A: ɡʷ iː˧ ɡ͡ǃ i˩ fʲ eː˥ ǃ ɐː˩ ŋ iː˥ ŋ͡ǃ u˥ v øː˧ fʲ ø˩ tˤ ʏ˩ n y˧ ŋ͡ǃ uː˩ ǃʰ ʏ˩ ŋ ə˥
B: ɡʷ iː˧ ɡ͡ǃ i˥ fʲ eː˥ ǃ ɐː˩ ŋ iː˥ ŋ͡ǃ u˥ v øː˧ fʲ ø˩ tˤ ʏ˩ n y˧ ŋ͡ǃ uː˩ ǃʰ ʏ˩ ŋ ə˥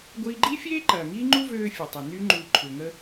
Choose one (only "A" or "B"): B